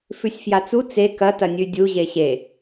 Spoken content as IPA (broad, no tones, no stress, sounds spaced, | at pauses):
f ʉ sʲ f j a t͡s u t͡s e k ɐ t ɐ nʲ ʉ dʲ u ʑ e ɕ e